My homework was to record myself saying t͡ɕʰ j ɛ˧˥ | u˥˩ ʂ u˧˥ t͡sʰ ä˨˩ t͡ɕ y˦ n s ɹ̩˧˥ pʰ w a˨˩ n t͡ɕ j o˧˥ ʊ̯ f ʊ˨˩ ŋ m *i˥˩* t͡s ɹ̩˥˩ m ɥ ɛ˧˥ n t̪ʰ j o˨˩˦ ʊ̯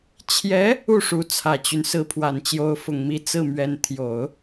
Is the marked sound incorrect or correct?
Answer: incorrect